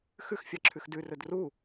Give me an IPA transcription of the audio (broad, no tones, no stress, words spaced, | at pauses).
xʉxfʲɑǁʰʉx dʉrɵd ru